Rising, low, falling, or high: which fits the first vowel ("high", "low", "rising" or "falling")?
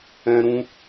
high